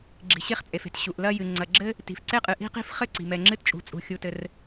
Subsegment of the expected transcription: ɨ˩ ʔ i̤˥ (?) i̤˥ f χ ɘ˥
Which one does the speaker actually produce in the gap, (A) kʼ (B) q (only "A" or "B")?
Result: B